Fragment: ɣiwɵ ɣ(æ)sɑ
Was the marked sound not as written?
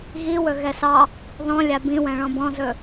yes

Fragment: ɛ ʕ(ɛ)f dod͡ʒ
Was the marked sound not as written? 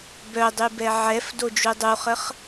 no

